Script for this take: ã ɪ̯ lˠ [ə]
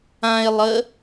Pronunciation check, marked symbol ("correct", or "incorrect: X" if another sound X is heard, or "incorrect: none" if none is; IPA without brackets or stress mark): correct